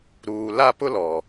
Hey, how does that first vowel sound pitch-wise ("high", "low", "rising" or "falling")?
low